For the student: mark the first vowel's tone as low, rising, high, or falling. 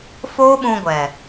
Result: high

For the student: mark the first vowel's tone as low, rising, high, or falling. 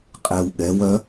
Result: low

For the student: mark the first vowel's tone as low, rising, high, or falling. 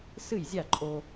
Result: falling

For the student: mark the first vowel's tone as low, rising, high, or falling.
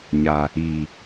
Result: low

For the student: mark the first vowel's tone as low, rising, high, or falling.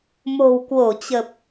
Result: low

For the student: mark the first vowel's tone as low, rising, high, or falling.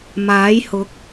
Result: rising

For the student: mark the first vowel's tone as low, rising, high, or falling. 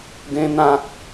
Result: high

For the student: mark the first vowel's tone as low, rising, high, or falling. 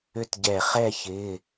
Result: falling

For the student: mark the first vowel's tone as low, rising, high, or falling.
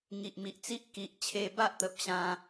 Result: low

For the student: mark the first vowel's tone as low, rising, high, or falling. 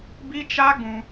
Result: high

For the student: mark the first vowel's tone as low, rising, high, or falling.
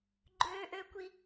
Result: high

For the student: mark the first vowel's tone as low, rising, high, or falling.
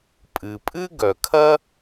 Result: low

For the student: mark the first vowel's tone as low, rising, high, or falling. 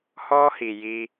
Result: high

